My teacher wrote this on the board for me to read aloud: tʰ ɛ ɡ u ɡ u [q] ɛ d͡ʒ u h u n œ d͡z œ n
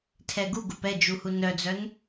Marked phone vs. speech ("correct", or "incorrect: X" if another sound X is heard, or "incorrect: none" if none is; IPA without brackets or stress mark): incorrect: p